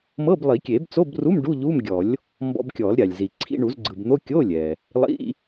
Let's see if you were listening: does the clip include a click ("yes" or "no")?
yes